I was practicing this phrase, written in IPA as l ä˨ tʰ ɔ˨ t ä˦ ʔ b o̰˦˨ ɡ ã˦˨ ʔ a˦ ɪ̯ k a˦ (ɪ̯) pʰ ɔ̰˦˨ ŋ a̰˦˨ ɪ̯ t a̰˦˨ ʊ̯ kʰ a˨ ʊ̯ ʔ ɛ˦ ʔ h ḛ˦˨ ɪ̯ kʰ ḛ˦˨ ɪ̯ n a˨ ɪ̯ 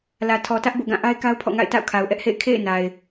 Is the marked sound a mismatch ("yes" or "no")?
yes